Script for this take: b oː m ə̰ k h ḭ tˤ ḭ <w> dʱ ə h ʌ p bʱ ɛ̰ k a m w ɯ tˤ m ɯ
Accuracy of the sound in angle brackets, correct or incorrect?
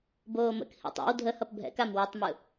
correct